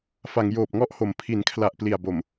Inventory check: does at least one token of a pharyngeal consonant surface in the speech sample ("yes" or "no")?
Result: no